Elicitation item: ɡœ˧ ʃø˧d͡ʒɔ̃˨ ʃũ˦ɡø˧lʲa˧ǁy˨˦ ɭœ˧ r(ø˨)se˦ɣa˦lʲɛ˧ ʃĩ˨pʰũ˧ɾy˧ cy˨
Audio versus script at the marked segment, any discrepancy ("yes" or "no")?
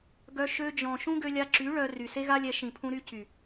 yes